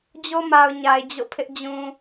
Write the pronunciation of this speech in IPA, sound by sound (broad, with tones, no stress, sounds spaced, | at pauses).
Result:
d͡ʑ o˦ m a˨ ʊ̯ ɲ a˨ ɪ̯ d͡ʑ o̰˦˨ pʰ ɪ˦ ʔ d͡ʑ ũ˨